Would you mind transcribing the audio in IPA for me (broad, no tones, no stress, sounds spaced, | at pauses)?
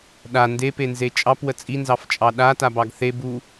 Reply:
ɗ a n d e p e n z e t͡ʃʼ ɑ p w ə t͡sʼ i n z ɑ f t͡ʃʼ ɑ ɗ a t a b ɑ ɡ θ e b u